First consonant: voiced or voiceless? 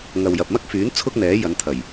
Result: voiced